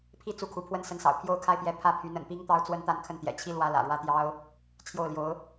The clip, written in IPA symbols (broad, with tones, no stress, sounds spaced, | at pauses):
pʰ i˥˧ t͡s u˥˩ kʰ u˧˥ pʰ w ə˥ n s ə˧˥ n s ɑ̰˨˩ ʊ̯ pʰ j o˥˧ ʊ̯ kʰ a˥˧ ɪ̯ p j ɛ˥˩ pʰ ä˥ pʰ y˧˥ n ə̰˨˩ n p i˥ ŋ t̪ ɑ˥ ʊ̯ t͡s w ə˥ n t̪ a˥˧ n kʰ ə˥˩ n t̪ j ɛ̰˨˩ t͡ɕʰ i˥ l w ä˧˥ l ä̰˨˩ ɻ w ä˥˩ t̪ j ɑ˥ ʊ̯ | t͡ɕʰ j o˥˩ ʊ̯ l j o˧˥ ʊ̯